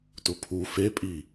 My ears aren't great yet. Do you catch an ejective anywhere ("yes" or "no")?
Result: yes